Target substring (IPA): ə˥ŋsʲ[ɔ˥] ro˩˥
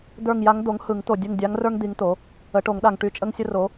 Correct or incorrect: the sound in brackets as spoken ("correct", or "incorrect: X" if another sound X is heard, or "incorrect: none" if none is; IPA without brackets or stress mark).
incorrect: ə˥